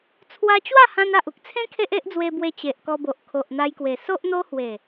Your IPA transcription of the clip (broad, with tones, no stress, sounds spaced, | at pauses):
t͡sʰ w a˧ t͡ɕ w a˥˧ h ã˧ n a˨ ʔ u˦ k̚ t͡sʰ ẽ˦ kʰ e˦ ʔ e˦ ʔ d͡z w e˧ b w e˧ t͡ɕ e˨ ʔ k ɔ˧ b o˨ ʔ kʰ o˨ ʔ n̪ a˧ j k w e˨˩ s o˦ ʔ n̪ o˦ h w e˨˩